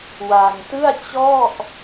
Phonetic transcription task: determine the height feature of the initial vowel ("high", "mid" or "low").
low